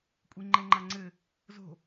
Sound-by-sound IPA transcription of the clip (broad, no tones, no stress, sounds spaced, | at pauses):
kʷʼ i ŋ͡ǃ ɛ ŋ͡ǃ a ŋ͡ǀ ɘ | z o̤